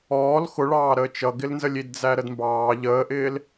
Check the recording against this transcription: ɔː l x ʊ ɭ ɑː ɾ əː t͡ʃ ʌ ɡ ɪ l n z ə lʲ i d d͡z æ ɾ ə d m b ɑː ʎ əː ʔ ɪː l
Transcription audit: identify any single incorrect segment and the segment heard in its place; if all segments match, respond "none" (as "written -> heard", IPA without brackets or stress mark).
none